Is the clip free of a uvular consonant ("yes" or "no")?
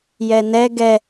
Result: yes